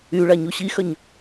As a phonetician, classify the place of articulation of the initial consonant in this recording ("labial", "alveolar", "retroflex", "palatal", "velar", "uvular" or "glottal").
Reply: retroflex